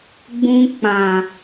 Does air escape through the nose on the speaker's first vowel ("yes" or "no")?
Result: yes